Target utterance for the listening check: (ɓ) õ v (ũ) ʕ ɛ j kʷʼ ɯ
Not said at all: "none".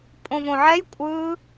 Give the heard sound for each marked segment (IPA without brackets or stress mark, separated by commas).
pʼ, õ